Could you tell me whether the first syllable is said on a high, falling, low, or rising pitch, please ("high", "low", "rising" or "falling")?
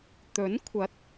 rising